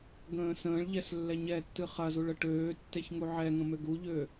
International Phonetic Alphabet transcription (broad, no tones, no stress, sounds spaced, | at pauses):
ɡ ə̃ː s ə̃ː ɭ ʎ ɛ s lː ɛ ɲ ɛ tː ɨ χ ɐ z u ɭ ə ʈ øː tː e ç ŋ u ʕ ɛ ŋ ə̃ m ø ɡ u ʎ ø